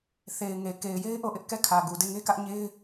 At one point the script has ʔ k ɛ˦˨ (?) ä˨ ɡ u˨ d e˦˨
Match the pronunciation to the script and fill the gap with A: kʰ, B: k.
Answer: A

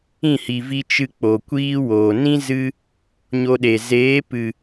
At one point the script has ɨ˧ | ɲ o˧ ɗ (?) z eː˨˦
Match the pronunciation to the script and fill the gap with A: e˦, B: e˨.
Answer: B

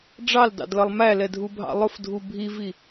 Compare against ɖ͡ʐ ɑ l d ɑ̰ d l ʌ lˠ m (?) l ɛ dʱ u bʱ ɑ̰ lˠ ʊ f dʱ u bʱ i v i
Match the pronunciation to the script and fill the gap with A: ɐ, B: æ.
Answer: B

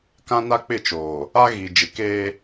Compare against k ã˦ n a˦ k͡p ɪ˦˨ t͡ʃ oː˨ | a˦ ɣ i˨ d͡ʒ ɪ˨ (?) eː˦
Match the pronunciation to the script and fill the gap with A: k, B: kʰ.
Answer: A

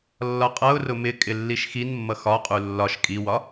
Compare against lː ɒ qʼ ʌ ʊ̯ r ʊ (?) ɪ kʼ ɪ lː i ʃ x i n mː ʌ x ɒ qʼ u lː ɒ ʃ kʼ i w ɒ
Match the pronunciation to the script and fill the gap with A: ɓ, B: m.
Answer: B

